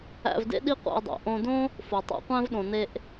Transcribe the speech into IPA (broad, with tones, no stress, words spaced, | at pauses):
æ̰˧vdḛ˥ ɗi˥qʷæ̰˧i̯dˤæ̰˩ ʔõ˧dõ˥ | fo˩tˤṵ˧qʷæ̃˥v ɗõ˩ne˧ʔ